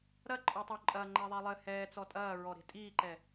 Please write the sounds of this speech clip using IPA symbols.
ɾ ɐ ǃʼ ɔ tˤ o ǃʼ ɐː ŋ͡ǃ ɛ ðˤ ɛ lˠ ɘ h ɛː t͡s ɔ tʼ ɐː ɹ ɔ ɾ e̤ tʼ iː ǃ ɛ

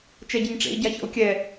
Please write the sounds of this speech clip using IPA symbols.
t͡ʃ ɛ ɟ ɘ ɲ ʈ͡ʂ ḛ i̯ ɟ a ç ɔ̰ u̯ kʲ ɛ

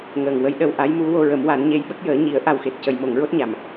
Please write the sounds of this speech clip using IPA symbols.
ŋ əː˨˩ ŋ w ə˧˥ j ɗ ə˧ w ʔ a˧˥ j m u˧˥ w o˧ ɹ ə˨˩˦ m w a˨˩˦ n ɲ e˧˥ j ɓ ə˦˥ k̚ j əː˨˩˦ ɲ i˨˩˦ ə̯ ʔ a˨˩ w x e˨˩ t̚ c ə˨˩˨ j m o˨˩˨ ŋ ɹ o˦˥ t̚ ɲ a˨˩˨ m

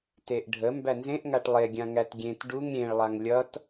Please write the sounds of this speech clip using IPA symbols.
t e ʔ ɖʱ ə m b æ n z ẽ ʔ ŋ a ʈ lˠ e ɡʲ ã ŋ æ t ɡʲ ẽ t ɖ u ŋ ɾʲ ẽ ɭ lˠ a ŋ lʲ ʌ t

